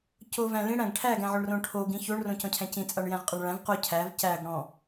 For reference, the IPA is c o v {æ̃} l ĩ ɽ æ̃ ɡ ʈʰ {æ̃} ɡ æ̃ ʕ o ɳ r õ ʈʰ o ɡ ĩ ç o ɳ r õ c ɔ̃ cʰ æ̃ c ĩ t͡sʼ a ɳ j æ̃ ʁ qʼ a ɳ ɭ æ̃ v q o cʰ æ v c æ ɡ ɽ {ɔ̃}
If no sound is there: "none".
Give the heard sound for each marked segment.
æ̃, æ, ɔ̃

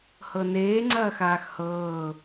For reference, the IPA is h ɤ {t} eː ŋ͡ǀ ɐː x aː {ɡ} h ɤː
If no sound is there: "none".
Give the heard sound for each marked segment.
n, x

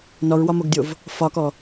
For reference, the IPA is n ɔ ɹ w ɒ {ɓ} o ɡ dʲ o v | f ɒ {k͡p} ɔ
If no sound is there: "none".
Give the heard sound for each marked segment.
m, k

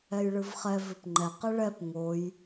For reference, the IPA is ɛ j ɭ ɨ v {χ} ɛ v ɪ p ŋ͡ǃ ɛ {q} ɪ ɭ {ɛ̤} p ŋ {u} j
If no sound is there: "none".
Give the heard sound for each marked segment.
χ, q, ɛ, o

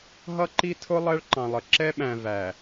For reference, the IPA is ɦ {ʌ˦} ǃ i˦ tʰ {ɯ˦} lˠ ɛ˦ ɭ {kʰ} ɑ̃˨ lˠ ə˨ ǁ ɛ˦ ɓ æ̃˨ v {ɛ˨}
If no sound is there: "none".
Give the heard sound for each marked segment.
ʌ˦, ʊ˦, ǃ, æ˨

